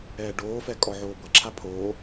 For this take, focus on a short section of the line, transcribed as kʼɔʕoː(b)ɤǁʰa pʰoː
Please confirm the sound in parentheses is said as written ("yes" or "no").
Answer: yes